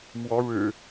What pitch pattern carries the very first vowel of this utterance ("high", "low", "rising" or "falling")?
rising